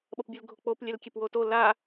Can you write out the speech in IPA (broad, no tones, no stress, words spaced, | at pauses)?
ɓʌpbʲɯlɡʱok͡pop lʲɛlkʲepwoto la